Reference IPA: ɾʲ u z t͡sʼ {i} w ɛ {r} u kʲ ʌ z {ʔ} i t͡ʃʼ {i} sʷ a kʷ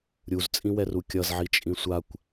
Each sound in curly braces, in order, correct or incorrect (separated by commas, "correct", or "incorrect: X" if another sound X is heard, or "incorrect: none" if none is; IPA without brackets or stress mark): incorrect: ĩ, correct, incorrect: ʕ, incorrect: ĩ